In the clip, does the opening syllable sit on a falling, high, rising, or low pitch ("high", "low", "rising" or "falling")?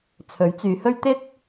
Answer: rising